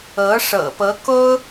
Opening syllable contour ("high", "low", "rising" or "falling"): rising